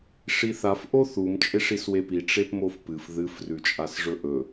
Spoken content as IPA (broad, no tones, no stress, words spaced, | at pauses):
ʂiθaf ʔoθum t͡ʃʼeʂiswepi ʈ͡ʂepmofpɨf ðɨf rʉt͡ʃʼasʐɵʔɵ